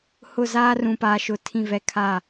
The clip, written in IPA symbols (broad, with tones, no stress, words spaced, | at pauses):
hʊ˦˨ zaː˦rũ˨paː˨ʃʊ˨ tʰĩ˦˨vɛ˦kʰa˦˨